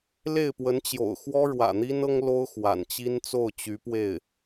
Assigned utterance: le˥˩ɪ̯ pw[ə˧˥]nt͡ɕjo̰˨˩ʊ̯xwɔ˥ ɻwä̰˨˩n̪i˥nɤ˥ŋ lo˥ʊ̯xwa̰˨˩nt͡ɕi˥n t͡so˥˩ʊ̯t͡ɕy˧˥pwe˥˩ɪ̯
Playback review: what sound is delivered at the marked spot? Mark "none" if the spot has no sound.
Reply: ə˧˥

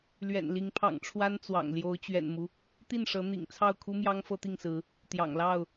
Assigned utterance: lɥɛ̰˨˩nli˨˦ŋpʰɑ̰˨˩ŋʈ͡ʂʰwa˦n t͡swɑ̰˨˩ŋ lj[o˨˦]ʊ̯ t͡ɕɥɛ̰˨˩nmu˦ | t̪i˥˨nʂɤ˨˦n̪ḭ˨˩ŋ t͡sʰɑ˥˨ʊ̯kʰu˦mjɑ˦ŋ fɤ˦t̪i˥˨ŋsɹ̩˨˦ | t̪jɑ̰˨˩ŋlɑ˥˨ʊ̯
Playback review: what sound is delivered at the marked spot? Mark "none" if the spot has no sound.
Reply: o˨˦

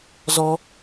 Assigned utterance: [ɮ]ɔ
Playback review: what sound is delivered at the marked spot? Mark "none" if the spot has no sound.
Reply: z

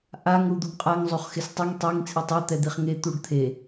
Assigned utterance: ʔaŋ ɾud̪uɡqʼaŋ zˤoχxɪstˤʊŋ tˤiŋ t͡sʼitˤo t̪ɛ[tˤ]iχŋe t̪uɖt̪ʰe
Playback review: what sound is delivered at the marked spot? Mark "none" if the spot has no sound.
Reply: d̪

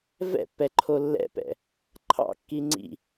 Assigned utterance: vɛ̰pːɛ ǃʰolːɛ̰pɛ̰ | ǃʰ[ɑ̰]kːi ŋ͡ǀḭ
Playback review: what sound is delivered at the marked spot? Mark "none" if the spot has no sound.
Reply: ɑ̰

